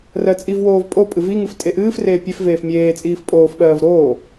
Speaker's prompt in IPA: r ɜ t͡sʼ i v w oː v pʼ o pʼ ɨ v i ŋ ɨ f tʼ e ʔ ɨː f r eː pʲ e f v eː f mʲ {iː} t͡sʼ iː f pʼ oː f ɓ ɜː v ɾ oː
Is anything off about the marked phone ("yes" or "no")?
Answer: yes